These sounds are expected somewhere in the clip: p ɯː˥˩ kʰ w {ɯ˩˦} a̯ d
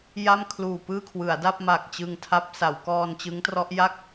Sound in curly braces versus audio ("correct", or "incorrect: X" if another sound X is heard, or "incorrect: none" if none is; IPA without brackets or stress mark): correct